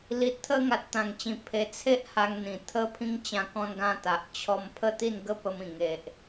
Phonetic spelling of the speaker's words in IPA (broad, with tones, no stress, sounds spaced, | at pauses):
l i˨ t̚ t̪ʰ ə˧ ŋ a˨ t̚ t̪ ã˨˩ ŋ t͡ɕ ĩ˨˩ pʰ e˨˩ t͡sʰ e˦ ʔ h a˧ ŋ n̪ ĩ˨˩ t̪ʰ ə˧ pʰ ĩ˧ ŋ t͡ɕ ã˧ k ɔ̃˧ n ɡ ã˧ t̪ a˨ ʔ t͡ɕʰ ɔ˧ m pʰ ə˥˧ t̪ i˥˧ n ɡ ə˦ p ə˧ m ĩ˨˩ ŋ e˨ ʔ